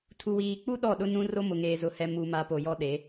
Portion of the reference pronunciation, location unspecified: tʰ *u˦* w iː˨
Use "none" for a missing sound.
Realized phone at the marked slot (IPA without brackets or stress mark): u˨